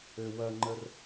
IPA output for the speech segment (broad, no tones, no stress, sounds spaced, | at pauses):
ø w ɐ ŋ͡ǃ ə r